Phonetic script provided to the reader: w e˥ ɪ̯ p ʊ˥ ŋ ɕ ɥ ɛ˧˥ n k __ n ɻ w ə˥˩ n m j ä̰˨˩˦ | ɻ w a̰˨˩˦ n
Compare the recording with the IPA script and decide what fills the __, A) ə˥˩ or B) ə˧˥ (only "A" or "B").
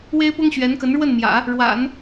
B